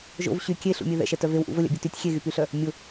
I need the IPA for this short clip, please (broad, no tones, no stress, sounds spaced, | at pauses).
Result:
ʒ o̰ v ɕ y kʲ e ɬ ṵ mʲ e ð ɛ̰ ʃ ɛ t œ v e w ʔ ṵ v ə lʲ a̰ bʲ ɛ t y tʲ xʲ e ɣ y p y ɬ œ | mʲ ʊ